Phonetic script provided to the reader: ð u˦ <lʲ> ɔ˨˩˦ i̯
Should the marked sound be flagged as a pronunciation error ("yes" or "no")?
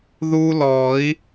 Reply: yes